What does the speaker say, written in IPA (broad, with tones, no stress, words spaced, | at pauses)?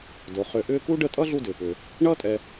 do˩ χʏː˨ʔʏː˦ku˥ ɖə˦tʼʌ˥ ɮu˦dʏː˩pʏː˩ | ɳʌː˥tʼɛ˨